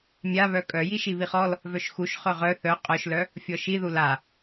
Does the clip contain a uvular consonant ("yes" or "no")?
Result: yes